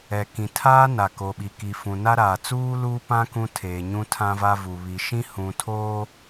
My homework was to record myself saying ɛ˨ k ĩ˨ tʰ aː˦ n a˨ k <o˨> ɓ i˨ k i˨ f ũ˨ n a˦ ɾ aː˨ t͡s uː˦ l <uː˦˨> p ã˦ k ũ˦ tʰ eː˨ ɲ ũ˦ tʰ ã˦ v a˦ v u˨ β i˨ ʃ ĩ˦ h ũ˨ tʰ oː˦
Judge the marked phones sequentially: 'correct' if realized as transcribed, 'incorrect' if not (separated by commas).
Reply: correct, incorrect